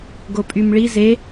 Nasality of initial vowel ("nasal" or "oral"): oral